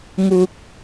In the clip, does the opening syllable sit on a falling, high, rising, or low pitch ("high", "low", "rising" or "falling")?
low